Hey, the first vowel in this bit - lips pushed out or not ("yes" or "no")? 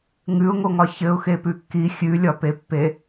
yes